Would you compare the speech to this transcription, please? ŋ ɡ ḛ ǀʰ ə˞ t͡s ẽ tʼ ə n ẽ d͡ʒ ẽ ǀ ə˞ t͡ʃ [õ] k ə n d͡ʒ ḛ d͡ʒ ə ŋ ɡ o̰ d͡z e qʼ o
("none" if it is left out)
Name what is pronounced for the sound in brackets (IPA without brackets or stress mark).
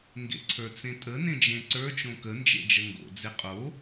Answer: õ